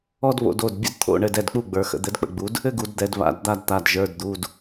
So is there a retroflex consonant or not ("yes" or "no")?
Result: yes